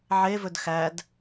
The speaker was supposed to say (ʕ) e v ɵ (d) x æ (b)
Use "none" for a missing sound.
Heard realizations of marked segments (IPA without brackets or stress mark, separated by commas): ʕ, d, d